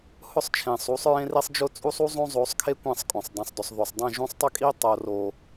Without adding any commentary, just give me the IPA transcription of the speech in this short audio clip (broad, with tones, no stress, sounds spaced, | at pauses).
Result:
h ʊ˦˨ sˤ t͡ʃʰ ẽ˨ sˤ u˨˦ sˤ ɹ ẽ˦ r i˦ sˤ d͡ʒ ʊ˦ t͡sʼ u˦ sˤ u˦ zˤ õ˦ zˤ o˨˦ sˤ kʰ e˦ kʷ ẽ˦˨ sˤ kʼ õ˨ sˤ dˤ ɛ̃˨ sˤ d ʊ˨ sˤ ð o˨ sˤ dˤ ẽ˦˨ ʒ ũ˦ sˤ tˤ ʏ˦ kʼ i˦ tˤ o˨ r o˨